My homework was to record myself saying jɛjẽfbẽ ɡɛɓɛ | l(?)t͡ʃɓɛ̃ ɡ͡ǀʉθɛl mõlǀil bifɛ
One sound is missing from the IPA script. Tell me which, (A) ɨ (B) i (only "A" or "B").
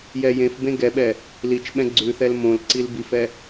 B